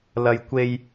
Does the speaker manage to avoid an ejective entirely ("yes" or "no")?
yes